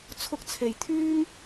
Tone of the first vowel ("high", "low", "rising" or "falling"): high